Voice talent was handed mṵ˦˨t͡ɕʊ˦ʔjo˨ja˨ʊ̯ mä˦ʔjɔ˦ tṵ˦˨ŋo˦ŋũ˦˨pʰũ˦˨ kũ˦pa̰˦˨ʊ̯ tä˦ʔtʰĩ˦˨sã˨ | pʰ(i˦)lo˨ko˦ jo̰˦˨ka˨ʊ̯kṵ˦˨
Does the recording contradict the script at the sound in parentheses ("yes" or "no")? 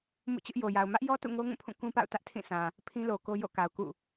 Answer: yes